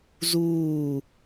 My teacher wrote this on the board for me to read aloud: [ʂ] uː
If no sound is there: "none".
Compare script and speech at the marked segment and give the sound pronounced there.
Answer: z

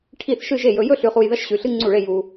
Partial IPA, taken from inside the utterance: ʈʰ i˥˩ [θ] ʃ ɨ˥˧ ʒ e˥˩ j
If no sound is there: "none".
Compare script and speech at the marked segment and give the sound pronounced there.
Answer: θ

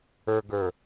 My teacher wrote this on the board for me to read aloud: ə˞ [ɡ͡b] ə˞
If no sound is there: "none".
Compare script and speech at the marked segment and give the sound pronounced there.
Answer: ɡ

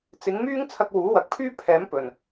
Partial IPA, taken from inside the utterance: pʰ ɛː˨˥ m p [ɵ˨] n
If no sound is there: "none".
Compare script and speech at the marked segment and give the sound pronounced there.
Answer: ɵ˨˩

